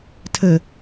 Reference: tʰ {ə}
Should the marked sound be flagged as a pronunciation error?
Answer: no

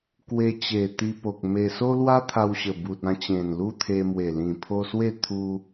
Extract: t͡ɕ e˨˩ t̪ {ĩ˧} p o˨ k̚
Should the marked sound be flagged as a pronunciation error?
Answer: yes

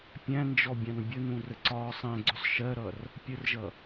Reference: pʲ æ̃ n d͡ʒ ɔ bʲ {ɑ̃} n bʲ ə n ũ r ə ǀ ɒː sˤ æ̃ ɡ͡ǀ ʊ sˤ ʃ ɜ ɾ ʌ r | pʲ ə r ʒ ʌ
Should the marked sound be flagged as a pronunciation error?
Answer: no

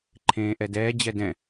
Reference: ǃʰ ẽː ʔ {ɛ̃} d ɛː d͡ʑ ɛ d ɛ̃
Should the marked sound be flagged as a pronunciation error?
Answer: yes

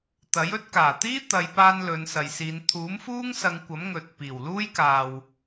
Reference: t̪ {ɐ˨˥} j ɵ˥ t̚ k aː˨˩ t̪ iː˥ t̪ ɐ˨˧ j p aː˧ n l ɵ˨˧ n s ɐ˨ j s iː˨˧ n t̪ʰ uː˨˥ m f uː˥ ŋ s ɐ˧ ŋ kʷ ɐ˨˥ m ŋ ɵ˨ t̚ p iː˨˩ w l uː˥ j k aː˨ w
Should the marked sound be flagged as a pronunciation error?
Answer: no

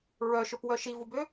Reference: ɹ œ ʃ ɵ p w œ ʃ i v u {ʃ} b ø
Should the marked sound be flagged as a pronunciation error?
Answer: yes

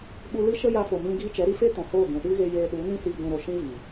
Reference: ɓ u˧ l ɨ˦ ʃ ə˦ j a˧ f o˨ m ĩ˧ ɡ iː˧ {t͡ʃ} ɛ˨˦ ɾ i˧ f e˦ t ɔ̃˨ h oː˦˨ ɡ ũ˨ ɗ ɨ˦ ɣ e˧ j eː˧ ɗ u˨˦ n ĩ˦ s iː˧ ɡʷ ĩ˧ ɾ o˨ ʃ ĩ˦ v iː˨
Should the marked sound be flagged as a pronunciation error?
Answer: no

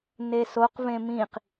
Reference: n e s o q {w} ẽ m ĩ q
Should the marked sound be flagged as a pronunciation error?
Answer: yes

